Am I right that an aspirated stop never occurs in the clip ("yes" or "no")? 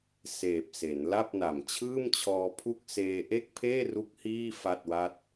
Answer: no